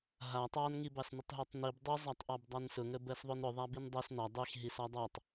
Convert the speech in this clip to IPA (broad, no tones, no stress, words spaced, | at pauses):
ɦa tˤɑnŋibɑsnʊtˤ ɦɜtˤnib dˤʊzˤatˤ ʔɑbdˤansʊŋə bɜsðˤʊnɾʊðˤa bindˤɜs nɑ dˤixɦis ɑdˤɑtˤ